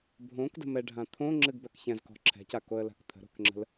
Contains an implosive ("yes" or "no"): no